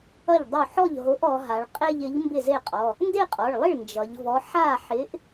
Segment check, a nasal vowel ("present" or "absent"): absent